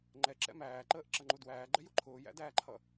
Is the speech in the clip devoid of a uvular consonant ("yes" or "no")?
yes